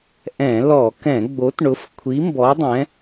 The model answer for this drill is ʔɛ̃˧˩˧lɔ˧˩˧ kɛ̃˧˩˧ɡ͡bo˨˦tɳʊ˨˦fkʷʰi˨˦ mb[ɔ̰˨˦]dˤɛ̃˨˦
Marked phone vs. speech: incorrect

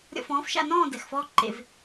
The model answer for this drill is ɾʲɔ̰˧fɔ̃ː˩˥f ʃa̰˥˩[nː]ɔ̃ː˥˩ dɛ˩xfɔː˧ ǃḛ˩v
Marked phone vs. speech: incorrect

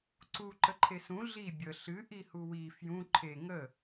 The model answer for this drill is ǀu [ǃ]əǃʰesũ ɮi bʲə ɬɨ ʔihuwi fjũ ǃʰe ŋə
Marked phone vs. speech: correct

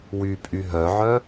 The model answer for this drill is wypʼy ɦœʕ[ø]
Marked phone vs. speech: incorrect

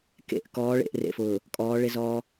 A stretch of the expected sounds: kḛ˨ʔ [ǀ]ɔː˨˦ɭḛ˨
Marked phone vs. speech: incorrect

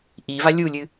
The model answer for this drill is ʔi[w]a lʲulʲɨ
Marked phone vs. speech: incorrect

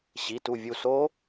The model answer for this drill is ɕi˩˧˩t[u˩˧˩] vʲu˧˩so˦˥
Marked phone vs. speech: incorrect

